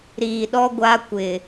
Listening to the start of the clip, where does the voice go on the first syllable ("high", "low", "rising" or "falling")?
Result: low